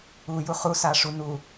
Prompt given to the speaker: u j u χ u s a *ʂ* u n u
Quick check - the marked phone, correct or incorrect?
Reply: correct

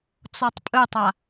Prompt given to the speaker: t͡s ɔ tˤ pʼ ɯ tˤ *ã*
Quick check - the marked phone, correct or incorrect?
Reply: incorrect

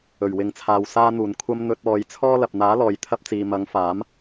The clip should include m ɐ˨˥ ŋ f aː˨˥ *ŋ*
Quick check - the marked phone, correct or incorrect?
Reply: incorrect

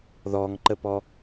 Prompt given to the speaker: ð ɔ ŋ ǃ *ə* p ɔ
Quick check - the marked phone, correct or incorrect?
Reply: correct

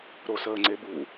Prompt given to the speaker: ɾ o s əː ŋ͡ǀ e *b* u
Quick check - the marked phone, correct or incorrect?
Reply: correct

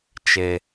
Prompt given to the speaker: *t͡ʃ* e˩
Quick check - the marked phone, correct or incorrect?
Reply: correct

